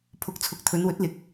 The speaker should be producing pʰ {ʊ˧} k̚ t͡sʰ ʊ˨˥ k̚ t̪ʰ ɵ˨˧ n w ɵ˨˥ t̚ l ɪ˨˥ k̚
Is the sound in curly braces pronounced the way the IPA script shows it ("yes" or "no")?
no